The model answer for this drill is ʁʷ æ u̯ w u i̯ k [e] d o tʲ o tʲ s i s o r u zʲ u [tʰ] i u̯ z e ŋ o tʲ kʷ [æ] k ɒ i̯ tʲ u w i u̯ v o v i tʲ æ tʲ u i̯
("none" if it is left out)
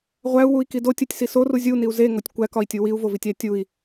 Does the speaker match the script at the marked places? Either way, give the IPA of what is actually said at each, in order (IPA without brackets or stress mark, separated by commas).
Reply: i, n, æ